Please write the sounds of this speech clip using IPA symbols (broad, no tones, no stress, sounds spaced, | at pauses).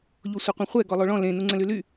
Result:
ʎ o sʷ e qʷ ẽ χʷ ɛ ɡ ɔ lˠ o ɭ ɔ̃ l ẽ n u ŋ͡ǀ ə̃ l y l y